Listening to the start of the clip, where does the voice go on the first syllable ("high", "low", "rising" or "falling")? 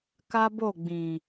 high